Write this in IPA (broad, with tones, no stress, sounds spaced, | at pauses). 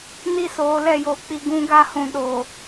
n i˦˨ s oː˨˦ l ɛ˦˨ j oː˦ k͡p i˦ ɡ ũ˦ ɡ a˦ h ũ˨ ɗ oː˨